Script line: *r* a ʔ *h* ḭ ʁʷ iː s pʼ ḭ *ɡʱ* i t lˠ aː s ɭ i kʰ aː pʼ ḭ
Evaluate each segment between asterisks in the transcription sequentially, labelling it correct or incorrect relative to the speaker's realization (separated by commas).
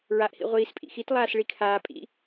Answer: incorrect, correct, incorrect